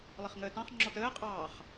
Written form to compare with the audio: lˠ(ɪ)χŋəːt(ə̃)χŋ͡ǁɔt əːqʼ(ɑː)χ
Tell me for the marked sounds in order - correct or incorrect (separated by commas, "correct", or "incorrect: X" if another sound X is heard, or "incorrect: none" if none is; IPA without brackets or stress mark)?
correct, incorrect: ɑ̃, correct